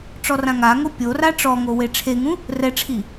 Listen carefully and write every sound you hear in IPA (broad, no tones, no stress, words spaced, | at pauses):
ʈ͡ʂɔrãŋaŋo pʲora ʈ͡ʂɔŋo weʈ͡ʂʰeŋũ | rɛʈ͡ʂʰi